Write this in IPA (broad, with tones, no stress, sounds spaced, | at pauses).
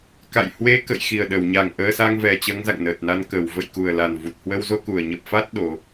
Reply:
k a̰˧˨ j h w e˧ k ə̰˧˨ j x i˨˩ ə̯ ɗ əː˧˩ w ɲ a˨˩ ŋ ʔ əː˧ s a˧ ŋ v ɛ˨˩ t͡ɕ əː˨˦ ŋ z a̰˧˨ ŋ n əː˨˩ t̚ n a˧ n k əː˧˩ w v ə̰˧˨ j k u˨˩ ə̯ l a˨˩ n v u˨˩ t̚ h w ə˧ w z o˧ k u˧˩ ə̯ ɲ ə˨˩ p̚ f a˦˥ t̚ ɗ o˨˦